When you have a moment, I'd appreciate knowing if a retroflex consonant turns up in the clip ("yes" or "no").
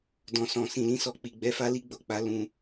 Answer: no